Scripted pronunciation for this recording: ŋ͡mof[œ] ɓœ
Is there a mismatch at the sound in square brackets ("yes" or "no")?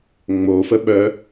yes